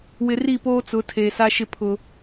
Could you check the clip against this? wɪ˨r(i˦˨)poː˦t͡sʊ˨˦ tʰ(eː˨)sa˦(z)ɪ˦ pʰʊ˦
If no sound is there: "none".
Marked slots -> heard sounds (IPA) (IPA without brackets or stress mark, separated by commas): i˦˨, eː˨, ʃ